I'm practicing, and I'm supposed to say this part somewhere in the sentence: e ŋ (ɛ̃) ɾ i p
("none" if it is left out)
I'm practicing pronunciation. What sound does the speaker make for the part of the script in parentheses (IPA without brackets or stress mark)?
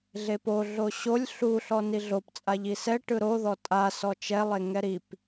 ɛ